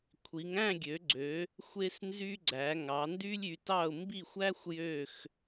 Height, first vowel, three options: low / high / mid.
high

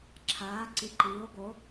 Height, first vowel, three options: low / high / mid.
low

